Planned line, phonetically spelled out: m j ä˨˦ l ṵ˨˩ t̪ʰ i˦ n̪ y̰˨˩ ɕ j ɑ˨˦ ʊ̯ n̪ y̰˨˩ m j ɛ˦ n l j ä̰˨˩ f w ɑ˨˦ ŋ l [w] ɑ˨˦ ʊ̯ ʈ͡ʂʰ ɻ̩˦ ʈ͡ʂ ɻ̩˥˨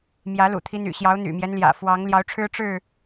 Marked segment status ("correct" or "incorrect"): incorrect